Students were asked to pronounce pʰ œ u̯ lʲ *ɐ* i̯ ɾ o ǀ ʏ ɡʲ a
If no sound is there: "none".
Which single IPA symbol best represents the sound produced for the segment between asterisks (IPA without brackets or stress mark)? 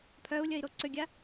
ɐ